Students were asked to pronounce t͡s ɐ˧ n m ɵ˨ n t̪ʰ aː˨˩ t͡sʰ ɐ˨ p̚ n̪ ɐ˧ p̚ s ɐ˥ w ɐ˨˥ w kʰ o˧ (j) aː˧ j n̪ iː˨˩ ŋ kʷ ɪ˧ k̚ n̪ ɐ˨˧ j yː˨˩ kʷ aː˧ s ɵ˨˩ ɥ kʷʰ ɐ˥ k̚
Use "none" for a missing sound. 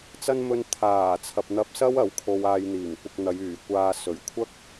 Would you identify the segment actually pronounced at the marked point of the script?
w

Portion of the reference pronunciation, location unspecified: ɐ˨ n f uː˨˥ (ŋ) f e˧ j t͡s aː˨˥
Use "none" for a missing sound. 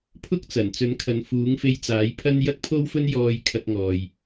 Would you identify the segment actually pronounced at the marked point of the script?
ŋ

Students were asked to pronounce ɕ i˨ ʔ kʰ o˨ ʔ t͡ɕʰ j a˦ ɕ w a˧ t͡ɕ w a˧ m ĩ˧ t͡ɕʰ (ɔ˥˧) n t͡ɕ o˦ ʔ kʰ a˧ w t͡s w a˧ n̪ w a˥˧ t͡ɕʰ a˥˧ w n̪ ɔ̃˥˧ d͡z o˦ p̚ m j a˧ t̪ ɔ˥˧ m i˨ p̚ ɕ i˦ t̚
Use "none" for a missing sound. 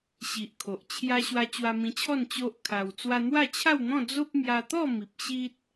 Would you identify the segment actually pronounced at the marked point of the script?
ɔ˥˧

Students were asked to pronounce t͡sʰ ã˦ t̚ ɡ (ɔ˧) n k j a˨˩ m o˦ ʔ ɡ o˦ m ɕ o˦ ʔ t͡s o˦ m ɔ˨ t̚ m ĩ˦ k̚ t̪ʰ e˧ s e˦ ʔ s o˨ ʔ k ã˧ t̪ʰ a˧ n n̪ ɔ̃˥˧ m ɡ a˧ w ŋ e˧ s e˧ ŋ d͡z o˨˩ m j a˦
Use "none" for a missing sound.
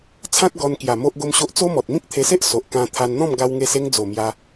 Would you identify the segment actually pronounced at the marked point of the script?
ɔ˧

